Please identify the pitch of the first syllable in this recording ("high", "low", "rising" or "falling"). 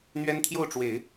high